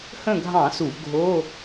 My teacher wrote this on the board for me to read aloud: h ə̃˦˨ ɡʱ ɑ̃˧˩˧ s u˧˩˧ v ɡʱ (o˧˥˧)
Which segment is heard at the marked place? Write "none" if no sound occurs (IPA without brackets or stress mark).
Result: o˧˥˧